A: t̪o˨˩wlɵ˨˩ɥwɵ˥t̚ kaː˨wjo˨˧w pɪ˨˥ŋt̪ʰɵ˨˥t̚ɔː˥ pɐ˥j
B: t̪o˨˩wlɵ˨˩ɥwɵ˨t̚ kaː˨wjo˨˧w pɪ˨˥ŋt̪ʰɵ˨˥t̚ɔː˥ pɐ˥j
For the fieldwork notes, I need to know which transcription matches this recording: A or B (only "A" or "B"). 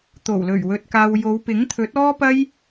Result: B